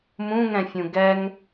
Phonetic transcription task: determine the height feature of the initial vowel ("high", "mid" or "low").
high